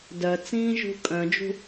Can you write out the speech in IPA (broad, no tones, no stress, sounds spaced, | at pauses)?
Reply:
d œ t͡s ĩː ʒ ṳ kʼ œ̃ d͡ʒ ṳ